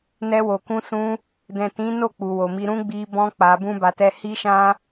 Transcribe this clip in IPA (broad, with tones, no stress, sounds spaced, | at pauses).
n ɛ˧ w o˨ k ũ˧ s ũ˧ | d ɛ̃˨ t ĩ˨˦ n o˦˨ k͡p u˨ w o˨ m i˧ ɾ ũ˦ ɡ͡b i˧ b ɔ̃˦ k͡p a˧ b ũ˦ b a˧ t ɛ˦ h i˦ ʃ ã˦